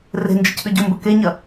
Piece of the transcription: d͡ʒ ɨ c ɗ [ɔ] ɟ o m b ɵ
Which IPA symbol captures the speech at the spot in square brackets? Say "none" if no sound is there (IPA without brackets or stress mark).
ɵ